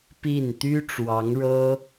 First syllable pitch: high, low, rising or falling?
falling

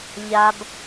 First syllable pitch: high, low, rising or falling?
low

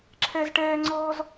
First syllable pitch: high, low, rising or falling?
high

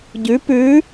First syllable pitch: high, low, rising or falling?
rising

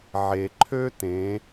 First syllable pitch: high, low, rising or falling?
low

